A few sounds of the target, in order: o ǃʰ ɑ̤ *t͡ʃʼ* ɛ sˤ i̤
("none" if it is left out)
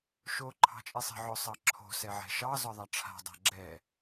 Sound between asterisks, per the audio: t͡ʃʼ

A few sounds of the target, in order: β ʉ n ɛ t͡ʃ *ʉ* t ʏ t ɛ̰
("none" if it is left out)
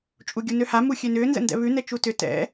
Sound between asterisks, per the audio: u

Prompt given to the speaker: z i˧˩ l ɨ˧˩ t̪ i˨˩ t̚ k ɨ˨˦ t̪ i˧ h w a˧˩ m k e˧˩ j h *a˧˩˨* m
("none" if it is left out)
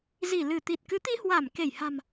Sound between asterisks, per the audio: a̤˨˩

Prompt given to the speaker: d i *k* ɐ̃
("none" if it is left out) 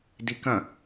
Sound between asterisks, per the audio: k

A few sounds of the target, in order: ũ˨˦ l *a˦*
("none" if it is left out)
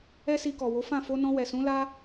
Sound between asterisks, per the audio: a˦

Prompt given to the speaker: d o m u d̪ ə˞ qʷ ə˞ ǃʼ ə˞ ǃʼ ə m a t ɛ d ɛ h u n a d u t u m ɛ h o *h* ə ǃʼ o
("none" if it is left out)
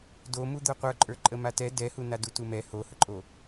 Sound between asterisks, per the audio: h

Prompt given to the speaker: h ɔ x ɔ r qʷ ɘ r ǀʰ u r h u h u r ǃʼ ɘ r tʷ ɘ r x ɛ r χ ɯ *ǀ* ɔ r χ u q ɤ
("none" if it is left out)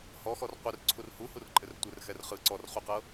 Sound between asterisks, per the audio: ǀ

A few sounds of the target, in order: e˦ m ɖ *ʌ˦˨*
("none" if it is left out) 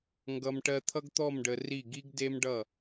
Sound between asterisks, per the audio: ʌ˦˨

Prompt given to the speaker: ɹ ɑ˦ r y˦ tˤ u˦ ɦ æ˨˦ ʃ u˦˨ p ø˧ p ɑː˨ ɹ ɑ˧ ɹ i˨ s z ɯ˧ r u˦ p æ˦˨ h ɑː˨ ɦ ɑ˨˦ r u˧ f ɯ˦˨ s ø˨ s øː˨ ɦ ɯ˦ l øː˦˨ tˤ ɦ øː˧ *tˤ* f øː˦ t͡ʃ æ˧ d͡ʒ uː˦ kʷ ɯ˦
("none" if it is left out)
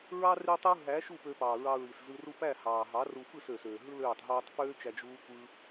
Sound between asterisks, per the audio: tˤ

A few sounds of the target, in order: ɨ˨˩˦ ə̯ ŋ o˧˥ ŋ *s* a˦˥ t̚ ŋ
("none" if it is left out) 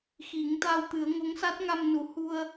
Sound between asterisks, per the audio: s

